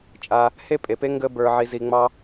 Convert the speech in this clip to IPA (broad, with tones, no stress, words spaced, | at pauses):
t͡ʃʼa˧ | he˥pʼe˩pe˥ ŋɡə˥ bə˞˧ʕi˧ zi˧ŋ͡mɑ˥